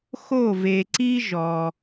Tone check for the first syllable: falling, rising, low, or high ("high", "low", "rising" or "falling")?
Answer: falling